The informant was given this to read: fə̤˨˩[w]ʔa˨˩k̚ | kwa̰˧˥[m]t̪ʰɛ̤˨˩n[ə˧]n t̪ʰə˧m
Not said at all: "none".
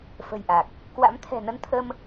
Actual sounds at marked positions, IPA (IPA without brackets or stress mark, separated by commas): j, m, ə˧